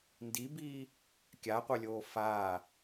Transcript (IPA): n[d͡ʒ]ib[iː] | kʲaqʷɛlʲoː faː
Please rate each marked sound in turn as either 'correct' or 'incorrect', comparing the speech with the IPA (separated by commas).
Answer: incorrect, correct